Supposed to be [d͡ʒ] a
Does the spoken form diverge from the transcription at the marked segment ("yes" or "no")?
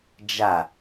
no